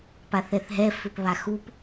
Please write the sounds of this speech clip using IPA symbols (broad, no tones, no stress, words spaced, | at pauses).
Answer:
paθɛθɦɛ fʏpβaxup